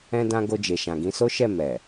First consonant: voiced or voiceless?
voiced